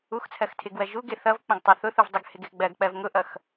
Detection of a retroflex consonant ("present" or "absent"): absent